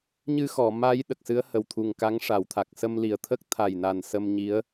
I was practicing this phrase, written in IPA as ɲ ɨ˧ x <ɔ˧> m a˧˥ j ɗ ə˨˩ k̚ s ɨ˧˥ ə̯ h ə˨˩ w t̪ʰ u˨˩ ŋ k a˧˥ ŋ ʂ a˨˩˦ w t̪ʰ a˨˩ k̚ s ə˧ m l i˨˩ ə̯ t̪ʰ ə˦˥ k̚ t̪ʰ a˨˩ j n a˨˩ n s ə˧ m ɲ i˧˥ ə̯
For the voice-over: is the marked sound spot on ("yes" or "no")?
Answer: no